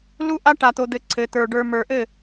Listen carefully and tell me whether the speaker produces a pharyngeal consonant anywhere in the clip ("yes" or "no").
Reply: no